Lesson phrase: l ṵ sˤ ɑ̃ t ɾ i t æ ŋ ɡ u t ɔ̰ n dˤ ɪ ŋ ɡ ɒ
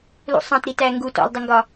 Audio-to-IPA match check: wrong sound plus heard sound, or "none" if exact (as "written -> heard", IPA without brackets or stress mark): n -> l